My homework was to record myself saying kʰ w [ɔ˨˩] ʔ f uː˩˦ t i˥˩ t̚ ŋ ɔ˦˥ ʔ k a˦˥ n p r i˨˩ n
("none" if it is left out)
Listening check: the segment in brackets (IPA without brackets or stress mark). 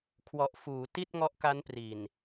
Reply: ɔ˨˩